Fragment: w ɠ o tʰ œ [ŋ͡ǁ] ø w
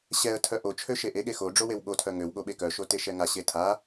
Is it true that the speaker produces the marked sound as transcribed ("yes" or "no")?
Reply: no